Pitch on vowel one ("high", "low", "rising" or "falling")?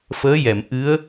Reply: rising